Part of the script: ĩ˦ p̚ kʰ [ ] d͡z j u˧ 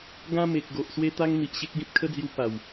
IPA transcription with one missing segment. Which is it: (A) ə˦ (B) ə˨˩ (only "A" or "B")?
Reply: A